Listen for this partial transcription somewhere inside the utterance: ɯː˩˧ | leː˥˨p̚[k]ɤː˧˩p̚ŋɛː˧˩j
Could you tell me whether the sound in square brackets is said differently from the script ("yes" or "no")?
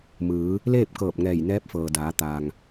no